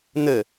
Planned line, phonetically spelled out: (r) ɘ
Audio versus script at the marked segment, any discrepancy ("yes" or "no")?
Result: yes